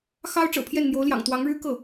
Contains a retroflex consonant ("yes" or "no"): yes